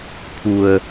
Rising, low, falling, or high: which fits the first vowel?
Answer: low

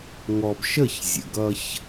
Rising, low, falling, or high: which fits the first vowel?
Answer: low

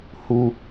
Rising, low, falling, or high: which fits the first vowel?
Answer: high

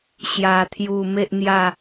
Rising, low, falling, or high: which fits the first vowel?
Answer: low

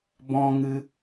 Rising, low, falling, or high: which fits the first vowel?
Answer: high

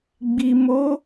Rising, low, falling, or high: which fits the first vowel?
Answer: low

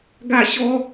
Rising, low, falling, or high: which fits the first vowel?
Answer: falling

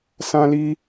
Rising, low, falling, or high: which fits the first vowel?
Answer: high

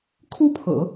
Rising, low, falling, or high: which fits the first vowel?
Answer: high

